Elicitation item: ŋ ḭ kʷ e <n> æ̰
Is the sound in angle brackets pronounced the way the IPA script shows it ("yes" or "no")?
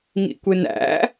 yes